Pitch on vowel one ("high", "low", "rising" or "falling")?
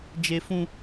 high